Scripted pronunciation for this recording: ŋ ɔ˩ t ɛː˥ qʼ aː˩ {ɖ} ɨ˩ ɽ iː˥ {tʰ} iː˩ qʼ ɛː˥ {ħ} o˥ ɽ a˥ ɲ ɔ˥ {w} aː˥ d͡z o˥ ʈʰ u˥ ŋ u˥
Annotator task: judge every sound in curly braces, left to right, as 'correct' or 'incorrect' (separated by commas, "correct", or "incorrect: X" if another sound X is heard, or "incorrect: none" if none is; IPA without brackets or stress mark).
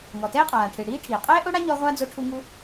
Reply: incorrect: ʈʰ, incorrect: ʈʰ, incorrect: ʔ, incorrect: ʁʷ